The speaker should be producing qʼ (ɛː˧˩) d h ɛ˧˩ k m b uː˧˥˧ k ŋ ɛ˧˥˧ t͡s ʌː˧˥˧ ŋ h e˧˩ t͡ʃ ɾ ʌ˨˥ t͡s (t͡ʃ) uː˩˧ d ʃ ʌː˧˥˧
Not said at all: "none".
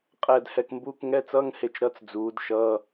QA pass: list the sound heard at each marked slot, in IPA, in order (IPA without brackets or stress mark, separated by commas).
ɛː˧˩, d͡z